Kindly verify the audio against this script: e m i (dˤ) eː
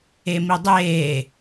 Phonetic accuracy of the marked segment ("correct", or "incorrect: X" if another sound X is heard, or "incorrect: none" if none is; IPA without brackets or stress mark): correct